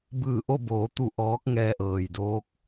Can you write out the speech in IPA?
b ɯː˧˩ ʔ o˥˨ b oː˩˧ t̪ u˧˩ ʔ ɔː˧˥ k̚ ŋ ɛː˧ ʔ ɤː˩ j d oː˧˥ k̚

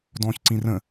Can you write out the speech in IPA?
d ɔ̃ː ç ǀ ĩ r ə̃

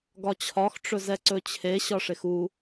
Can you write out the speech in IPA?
ɡ ɒ t͡ɕʰ ɒ x ʈ͡ʂ ɵ z ɛ ǀ ɵ t͡ɕʰ e ɕ ɒ ʂ e x u

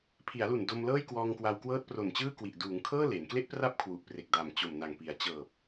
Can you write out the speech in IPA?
pʰ i˩˦ a̯ l u˨˩ n d o˧ m l ɤː˥˩ j k w ɔː˧ ŋ k w a˧ w k w ɤː˦˥ t̚ p r o˨˩ n t͡ɕ ɯː˥˩ k w i˨˩ ʔ d uː˩˦ ŋ kʰ ɤː˥˩ l e˩˦ n k l e˦˥ ʔ p r a˦˥ p̚ kʰ w u˨˩ ʔ p r e˨˩ k̚ d a˨˩ m t͡ɕ o˨˩ m n a˨˩ ŋ p i˩˦ a̯ t͡ɕ ɤː˨˩ p̚

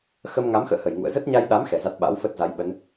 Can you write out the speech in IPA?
x ə˧ m ŋ a˨˦ m x ə̰ː˧˨ h ə˧˩ j ŋ ṵ˧˨ ə̯ z ə˦˥ t̚ ɲ a˧ j ɗ a˨˦ m x ɛ˨˩ z a˦˥ t̚ ɓ a̰˧˥ w f ə˦˥ t̚ z a˨˦ j ɓ ə˨˦ n

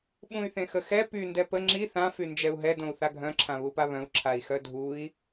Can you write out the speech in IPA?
ɓ ũ y̯ θ ẽ x ə x ɛ p y n d ɛ p ə ŋ͡ǁ i θ ã f y n d͡ʒ ɛ u̯ ɦ ɛ d õ u̯ θ a ɡʱ œ̃ ǁʰ ã β u p a β œ̃ u̯ ǁʰ a i̯ x œ dʱ u i̯

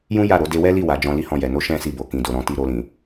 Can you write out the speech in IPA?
j ũ˦ j a˦˨ ɾ o˨˦ d e˧ w ɛ˦ l i˦˨ w a˨˦ d͡ʒ ɔ̃˧ l i˦ h ɔ̃˦˨ j ɛ˨ n o˧ ʃ ɛ̃˦ s i˦˨ b o˨ k ĩ˧ d o˧ ɾ ɔ̃˦ t i˦ ɾ o˧ l ĩ˨

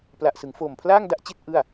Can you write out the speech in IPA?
p l a˨˩ ʔ s ɯ˩˦ ŋ f oː˨˩ m pʰ l aː˥˩ ŋ d a˥˩ ʔ t͡ɕ i˥˩ t̚ ʔ ɯ˥˩ a̯

